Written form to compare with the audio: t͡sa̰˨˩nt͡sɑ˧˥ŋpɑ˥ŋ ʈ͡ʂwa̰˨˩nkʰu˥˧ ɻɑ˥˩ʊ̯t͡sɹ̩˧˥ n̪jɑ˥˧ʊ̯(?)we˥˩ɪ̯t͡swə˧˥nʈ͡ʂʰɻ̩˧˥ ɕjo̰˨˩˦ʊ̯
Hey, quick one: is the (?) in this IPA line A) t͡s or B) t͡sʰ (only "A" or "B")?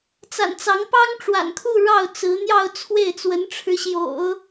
B